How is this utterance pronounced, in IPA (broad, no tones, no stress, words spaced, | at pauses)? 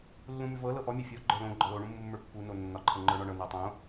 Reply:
lːũmʉvɤ lɤʔɔ mʲɤfʲɔ ɡ͡ǃə˞lõ ɡ͡ǃɒlo ɳũmːumːə˞pːu nonːɒ ǃʰɤŋ͡ǃə˞ɳɒɳɤ nɤtˤõ